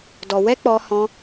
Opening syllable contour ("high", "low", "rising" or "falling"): low